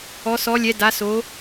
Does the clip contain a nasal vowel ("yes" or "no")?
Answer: no